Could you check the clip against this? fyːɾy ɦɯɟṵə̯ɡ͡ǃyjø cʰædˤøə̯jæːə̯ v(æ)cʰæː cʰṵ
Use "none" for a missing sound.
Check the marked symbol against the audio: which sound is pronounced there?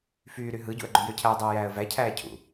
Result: æ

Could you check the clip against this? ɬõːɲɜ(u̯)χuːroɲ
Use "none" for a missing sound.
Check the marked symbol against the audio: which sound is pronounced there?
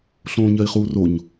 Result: i̯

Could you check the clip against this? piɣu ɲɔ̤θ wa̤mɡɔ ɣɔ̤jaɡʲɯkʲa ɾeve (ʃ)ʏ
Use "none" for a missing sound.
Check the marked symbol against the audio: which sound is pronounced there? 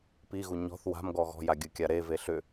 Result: ɬ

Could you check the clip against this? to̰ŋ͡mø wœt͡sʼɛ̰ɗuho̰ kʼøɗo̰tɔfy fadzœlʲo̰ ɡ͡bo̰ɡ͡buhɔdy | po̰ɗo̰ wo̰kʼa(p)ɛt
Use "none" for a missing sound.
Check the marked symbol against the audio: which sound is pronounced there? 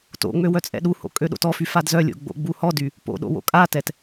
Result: t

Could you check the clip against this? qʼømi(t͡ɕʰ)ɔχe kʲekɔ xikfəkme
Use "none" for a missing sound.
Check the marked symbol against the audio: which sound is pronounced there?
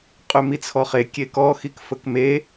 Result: t͡sʰ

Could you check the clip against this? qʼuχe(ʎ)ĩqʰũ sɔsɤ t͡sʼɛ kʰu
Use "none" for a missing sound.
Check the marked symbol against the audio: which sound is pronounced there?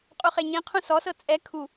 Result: ɲ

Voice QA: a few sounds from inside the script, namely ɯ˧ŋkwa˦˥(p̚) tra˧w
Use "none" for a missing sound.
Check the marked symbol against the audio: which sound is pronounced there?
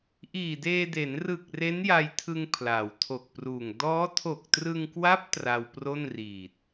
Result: p̚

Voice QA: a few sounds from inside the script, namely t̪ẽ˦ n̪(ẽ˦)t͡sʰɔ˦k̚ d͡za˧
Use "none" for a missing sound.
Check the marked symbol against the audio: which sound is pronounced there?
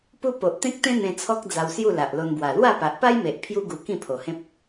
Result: ẽ˧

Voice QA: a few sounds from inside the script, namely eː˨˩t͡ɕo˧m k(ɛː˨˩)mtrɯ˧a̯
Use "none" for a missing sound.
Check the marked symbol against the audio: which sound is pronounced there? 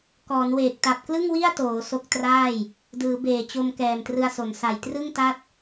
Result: ɛː˨˩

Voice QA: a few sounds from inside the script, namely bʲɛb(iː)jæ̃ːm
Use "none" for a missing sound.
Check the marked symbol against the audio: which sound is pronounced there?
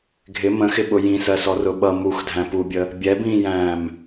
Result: ĩː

